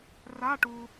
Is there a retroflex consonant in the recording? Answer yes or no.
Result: yes